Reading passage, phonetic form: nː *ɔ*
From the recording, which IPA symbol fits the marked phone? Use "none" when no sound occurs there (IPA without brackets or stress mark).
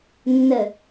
ə